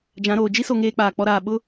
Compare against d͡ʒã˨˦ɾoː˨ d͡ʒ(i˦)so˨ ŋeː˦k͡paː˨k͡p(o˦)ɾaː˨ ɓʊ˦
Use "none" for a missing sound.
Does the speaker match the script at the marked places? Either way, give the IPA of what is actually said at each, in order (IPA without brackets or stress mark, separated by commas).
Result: i˦, ɔ˦